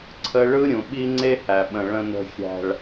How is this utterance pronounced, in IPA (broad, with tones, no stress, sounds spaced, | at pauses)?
ǀʰ ə˧ ɭ ɯ˦ ɾʲ ũ˨ ɓ i˦ ŋ͡ǀ e˦ h æ˨ ɓ ə̃˨ ɭ ə̃˨ n ə̤˨ xʲ æ̤˨ ɭ